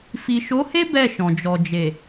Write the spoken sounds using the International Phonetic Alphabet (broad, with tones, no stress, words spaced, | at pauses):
fi˨ʃo˨˦he˦ bɛ˦˨ʃɔ̃˨d͡ʒɔ˨d͡ʒe˨